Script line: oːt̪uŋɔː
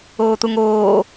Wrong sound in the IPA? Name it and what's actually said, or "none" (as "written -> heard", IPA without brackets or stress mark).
ɔː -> oː